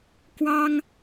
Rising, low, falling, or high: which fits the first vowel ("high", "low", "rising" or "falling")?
high